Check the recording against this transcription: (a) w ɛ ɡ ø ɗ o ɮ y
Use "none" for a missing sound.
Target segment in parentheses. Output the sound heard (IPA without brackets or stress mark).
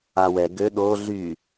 a